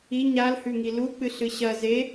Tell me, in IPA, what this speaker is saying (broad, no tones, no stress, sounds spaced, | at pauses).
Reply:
i ɲ a l h ʉ ŋ i l u k͡p ɨ ɬ ɨ ɕ ɐ z e